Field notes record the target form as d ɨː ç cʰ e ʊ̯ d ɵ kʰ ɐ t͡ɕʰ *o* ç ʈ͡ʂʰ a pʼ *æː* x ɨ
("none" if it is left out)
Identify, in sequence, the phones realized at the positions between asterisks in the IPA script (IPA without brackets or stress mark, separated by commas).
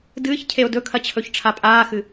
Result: ɵ, aː